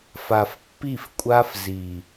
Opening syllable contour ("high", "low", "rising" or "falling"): low